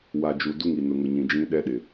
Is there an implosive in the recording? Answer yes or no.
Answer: yes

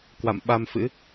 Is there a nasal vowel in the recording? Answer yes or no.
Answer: no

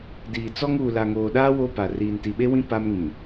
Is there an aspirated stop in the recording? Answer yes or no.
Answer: no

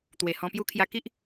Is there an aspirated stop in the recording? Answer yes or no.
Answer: yes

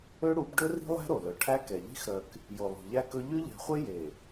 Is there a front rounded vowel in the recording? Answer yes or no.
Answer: yes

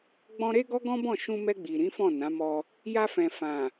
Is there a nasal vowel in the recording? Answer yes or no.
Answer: yes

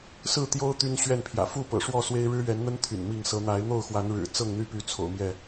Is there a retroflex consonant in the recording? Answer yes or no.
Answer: yes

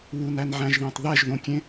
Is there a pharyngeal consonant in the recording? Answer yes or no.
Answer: yes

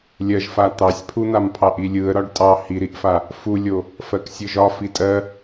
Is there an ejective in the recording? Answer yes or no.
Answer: yes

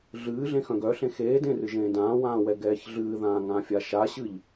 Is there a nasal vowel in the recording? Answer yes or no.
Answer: yes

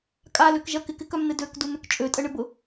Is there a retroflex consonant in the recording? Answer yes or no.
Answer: yes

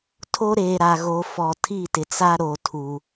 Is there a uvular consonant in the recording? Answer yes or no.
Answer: no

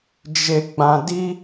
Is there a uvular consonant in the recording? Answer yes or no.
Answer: no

